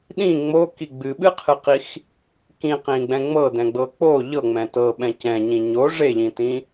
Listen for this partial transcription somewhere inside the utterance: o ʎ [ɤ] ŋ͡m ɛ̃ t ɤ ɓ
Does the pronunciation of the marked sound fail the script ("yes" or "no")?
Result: no